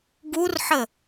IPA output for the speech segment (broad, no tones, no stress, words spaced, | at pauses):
ɡurħə